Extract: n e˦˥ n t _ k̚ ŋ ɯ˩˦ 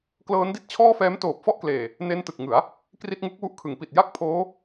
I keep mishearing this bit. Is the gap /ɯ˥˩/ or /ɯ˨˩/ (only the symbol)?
ɯ˨˩